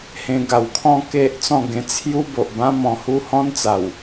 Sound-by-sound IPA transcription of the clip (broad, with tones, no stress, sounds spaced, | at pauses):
h ẽ˧ ɡ a˨˩ w kʰ ɔ̃˦ k e˦ ʔ t͡s ɔ̃˥˧ ɡ ẽ˧ t͡sʰ j u˦ b o˨ ʔ b ã˦ m ɔ̃˧ h u˦ h ɔ̃˦ n t͡s a˨˩ w